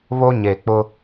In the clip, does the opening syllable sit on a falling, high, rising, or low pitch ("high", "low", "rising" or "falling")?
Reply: high